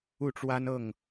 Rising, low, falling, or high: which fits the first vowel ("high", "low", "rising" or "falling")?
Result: falling